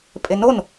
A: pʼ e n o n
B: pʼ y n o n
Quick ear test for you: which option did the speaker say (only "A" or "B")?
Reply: A